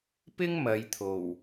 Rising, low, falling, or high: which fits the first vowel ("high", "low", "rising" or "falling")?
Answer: high